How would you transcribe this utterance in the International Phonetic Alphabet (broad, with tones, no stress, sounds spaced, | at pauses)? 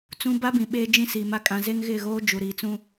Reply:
t͡s ũ˦ b a˦ b ĩ˨ ɓ e˦ d͡ʒ ĩ˦ s i˨ m a˦ kʼ ã˨ z e˦ ŋ ɣ ɪ˦˨ ɣ oː˦ d͡ʒ u˨ ɾ iː˨ t͡s ũ˦